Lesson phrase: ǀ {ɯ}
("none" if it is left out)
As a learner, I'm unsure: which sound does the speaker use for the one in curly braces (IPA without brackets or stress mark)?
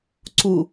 u